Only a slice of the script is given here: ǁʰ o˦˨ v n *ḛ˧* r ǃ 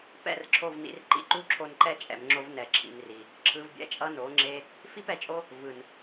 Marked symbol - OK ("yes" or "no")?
no